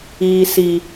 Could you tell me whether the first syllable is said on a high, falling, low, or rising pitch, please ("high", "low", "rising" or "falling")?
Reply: low